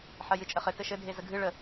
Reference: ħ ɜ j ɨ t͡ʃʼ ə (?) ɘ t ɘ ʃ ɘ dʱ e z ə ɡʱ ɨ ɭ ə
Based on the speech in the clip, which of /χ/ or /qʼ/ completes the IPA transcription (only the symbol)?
χ